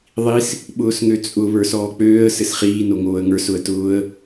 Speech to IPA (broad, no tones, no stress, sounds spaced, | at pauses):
ðˤ i s | ɓ ʊː s ŋ ø t͡sʼ ʊ β ə˞ s ɔː k͡p øː ə̯ s ɘ s χ iː n o ŋ oː ə̯ ŋ ə˞ s ʊ ə̯ t ʊː ə̯